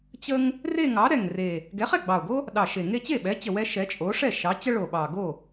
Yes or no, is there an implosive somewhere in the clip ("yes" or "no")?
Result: yes